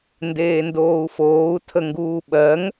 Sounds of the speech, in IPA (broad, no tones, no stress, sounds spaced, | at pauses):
n d eː n d oː u̯ f oː u̯ tʰ ə ŋ ɡ uː ɓ ɜ ŋ